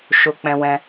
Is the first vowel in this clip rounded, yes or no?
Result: yes